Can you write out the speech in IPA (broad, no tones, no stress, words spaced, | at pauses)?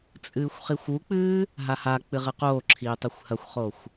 t͡sʼɨːxʷχixʷuk͡pɨː | ɦahak͡pɨ ʁɨqoːǁʰiː tˤixʷhɐxʷχoxʷ